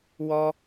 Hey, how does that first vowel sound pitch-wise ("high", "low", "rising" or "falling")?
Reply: high